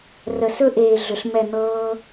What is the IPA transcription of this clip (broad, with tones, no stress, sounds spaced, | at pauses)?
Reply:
r ə˨ s ɵ˦ ʔ eː˨ ɮ ʏ˨ ɬ m ɛ˦˨ n̪ ɤː˦